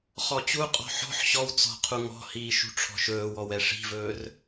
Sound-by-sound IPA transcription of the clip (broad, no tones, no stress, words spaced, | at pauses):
χɔt͡ɕuqʼɔ̤ ħɔ̤ħ ɕɔw t͡sɔ̤ qʰuŋɔ̤hiː ʃṳʈ͡ʂʰɔ̤ʃɵːwɔw ɛʂi̤vɵːr